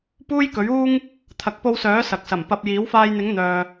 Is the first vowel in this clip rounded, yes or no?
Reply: yes